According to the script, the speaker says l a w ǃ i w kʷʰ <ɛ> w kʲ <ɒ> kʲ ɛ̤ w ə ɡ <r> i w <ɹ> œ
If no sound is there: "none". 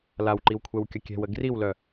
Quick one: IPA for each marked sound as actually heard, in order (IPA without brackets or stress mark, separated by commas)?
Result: ɛ, ʌ, r, l